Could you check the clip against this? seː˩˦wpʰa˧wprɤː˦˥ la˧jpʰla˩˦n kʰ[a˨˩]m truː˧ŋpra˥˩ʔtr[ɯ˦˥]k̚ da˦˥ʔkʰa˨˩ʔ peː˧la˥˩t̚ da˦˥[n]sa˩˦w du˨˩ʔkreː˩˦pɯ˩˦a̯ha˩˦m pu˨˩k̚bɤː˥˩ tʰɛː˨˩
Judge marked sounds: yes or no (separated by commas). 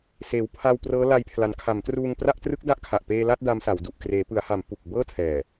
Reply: no, yes, no